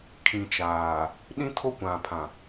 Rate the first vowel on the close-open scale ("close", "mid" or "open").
close